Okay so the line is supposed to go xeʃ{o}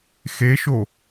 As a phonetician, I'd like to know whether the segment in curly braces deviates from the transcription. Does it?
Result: no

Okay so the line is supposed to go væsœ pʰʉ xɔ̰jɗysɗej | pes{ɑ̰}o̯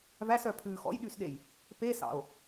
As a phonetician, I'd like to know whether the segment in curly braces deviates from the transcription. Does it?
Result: no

